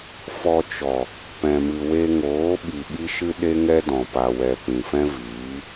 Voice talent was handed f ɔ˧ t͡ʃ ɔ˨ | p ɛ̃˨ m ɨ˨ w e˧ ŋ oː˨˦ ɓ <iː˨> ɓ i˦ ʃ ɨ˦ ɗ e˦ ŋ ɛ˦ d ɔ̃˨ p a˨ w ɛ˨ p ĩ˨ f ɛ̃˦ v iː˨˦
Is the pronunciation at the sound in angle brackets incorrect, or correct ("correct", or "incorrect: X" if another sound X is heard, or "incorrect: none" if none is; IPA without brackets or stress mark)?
incorrect: i˨